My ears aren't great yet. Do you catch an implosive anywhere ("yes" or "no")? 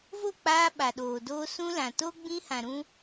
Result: yes